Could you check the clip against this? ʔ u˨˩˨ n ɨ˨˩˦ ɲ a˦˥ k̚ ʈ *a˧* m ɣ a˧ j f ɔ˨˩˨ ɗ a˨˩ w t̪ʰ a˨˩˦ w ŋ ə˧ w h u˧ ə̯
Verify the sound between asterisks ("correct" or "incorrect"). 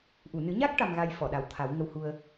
correct